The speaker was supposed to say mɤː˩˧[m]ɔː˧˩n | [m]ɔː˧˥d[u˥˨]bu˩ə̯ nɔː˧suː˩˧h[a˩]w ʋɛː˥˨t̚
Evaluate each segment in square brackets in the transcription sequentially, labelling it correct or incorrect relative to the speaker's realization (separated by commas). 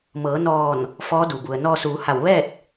incorrect, incorrect, incorrect, incorrect